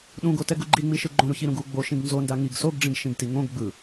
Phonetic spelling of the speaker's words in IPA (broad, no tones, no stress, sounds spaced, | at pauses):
ɗ ũ ɡ o t ɛ ɡ u ɡ͡ǃ i ŋ͡m i ʃ ɯ ɡ͡ǃ õ ɾ u ç i ɾ ũ ɡ u ɡ͡b o ʃ ĩ ɡ n z o n d a ŋ i ɡ s o ɡ ɖ͡ʐ ĩ ɡ ʃ ĩ ɡ t i ŋ õ ɡ ɡ͡b ɯ